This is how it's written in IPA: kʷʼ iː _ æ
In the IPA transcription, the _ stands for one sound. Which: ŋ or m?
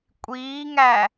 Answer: ŋ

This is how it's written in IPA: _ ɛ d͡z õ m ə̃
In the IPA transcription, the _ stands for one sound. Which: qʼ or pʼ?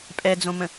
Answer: pʼ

